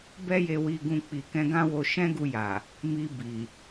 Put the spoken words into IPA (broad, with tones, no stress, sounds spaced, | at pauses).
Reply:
b ɛ˦ j e˧ w i˧ ɡ ũ˧ k͡p i˨ k ɛ̃˧ ɡ ã˦ w o˧ ʃ ɛ̃˦ ɡ u˧ j a˨ | m i˧ b i˨